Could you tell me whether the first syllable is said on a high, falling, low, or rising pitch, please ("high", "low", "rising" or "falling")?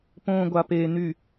low